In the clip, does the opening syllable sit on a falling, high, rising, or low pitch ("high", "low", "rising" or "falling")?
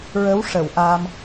rising